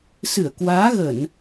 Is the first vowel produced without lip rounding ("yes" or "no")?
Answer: yes